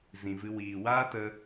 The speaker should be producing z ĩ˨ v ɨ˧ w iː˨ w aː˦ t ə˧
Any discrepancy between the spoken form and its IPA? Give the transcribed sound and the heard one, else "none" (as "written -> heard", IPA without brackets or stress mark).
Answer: none